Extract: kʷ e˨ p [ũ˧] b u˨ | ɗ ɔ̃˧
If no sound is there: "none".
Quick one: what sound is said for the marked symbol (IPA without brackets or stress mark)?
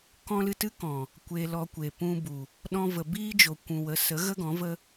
ũ˧